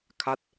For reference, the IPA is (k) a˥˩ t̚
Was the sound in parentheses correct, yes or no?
no